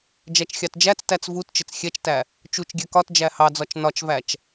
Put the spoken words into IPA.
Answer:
d͡ʒæt͡ʃxʲɑtd͡ʒæt͡stæt͡s vutt͡ʃɪt͡s xʲɛt͡ʃtæ | t͡ʃut͡ʃɡʲɛ kɒt d͡ʒæhɑd͡zɒt͡ʃ nɒt͡ʃvæt͡ʃ

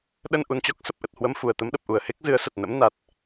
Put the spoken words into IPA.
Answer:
ɗə˧nʔu˨˩nt͡ɕɔ˦˥k̚sə˨˩p̚ ʔə˨˩t̚hwə˧mfu˨˩ə̯ t̪ə˨˦mɗə˨˩p̚ʔu˨˩ə̯ he˦˥k̚zɨ˨˦ə̯sə˨˩t̚ nə̰˧˥mna˨˩t̚

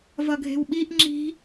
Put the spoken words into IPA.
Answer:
vʌɡʱe̤wɓiʔ ŋ͡ǁi̤

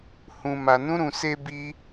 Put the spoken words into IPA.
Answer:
hũ˧ma˧nũ˦ɾũ˧ se˦bi˦

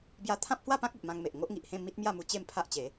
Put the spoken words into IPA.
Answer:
bja˧t̪ʰã˦p̚hwa˥˧pã˦k̚ i˨ʔmã˧ŋme˨ʔ ŋo˦ʔŋi˨ʔhẽ˥˧ mi˦t̚mja˥˧mu˧ t͡ɕe˥˧mpʰa˦ʔt͡ɕe˨˦

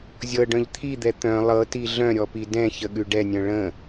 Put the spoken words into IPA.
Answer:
zʲɤɖœ̃ʎ t̪ʰid̪ɛ t̪œ̃ lˠɤti ɮœ̃ɾʲɔpi dɛ̃çəɠʉ ɖɛnʲœ̃ ɭə̃

